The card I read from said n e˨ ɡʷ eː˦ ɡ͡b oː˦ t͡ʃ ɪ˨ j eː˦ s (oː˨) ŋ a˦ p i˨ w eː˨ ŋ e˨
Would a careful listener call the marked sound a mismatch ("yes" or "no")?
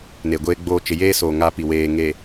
no